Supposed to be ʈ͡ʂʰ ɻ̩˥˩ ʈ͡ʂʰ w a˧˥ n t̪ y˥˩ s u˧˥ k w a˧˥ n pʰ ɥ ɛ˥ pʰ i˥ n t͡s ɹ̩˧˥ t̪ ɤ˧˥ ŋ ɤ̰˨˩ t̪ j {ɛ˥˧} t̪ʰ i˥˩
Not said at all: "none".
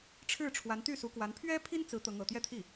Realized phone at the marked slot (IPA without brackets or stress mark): ɛ˥˧